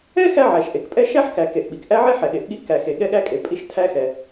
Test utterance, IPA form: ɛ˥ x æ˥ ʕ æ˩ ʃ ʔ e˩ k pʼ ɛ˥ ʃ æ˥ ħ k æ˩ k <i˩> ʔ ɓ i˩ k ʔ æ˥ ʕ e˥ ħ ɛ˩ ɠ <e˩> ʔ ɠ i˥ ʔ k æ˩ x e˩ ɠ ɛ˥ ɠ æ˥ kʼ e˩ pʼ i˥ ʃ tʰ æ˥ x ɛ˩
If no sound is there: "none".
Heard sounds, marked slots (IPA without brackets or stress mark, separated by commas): e˩, e˩